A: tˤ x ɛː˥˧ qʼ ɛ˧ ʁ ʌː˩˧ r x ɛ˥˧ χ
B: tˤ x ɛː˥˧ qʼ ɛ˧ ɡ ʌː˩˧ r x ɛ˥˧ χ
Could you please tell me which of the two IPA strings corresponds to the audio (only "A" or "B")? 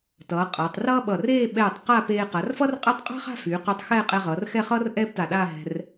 A